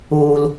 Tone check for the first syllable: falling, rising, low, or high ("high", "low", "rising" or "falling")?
low